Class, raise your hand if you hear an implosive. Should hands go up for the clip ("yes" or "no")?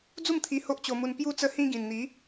no